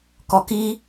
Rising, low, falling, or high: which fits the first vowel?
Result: low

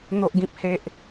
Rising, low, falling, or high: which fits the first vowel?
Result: low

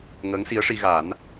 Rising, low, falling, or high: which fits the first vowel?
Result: rising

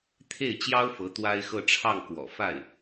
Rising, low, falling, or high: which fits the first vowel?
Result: falling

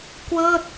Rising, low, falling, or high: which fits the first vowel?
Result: falling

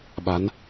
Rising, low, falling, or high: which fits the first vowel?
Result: rising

